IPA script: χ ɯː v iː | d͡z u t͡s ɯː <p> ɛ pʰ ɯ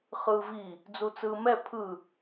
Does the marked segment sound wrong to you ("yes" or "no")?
yes